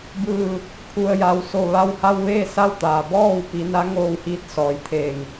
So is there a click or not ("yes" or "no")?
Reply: no